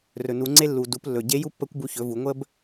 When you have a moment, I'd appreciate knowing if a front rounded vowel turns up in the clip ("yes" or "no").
no